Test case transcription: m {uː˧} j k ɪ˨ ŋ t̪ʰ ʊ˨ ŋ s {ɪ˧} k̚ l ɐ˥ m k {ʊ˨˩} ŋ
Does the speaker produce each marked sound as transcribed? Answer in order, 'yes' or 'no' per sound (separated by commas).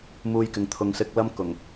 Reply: yes, yes, yes